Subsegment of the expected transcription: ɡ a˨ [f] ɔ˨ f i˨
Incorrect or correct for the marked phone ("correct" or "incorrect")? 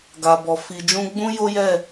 incorrect